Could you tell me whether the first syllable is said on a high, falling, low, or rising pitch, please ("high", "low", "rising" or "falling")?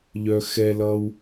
high